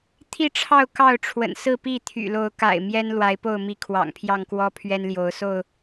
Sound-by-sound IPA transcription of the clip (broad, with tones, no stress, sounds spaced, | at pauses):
t̪ʰ i˥˨ ʈ͡ʂʰ ɑ˥˨ ʊ̯ k ɑ˥˨ ʊ̯ ʈ͡ʂʰ w ə̰˨˩ n s ɹ̩˥˨ p i˥˨ t̪ʰ y̰˨˩ l o˨˦ ʊ̯ k a̰˨˩ ɪ̯ m j ɛ˦ n l w a˨˦ ɪ̯ p o˥˨ ʊ̯ m i˨˦ kʰ w ɑ̰˨˩ ŋ pʰ j ɑ˥˨ ŋ k w ɔ˦ pʰ ɥ ɛ˦ n l j o˨˦ ʊ̯ s o˥˨ ʊ̯